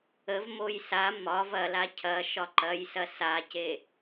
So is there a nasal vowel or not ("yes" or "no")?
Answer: no